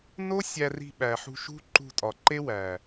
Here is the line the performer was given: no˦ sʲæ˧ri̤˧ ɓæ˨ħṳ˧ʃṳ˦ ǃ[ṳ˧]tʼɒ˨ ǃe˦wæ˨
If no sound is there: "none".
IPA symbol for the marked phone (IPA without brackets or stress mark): ṳ˧